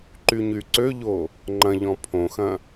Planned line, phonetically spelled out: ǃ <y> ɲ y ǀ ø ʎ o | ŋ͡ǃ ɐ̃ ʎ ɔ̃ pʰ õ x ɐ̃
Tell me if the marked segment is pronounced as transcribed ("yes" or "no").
yes